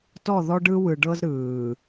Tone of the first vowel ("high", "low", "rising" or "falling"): falling